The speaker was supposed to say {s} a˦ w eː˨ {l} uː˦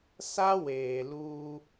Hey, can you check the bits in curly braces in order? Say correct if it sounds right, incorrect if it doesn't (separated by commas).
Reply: correct, correct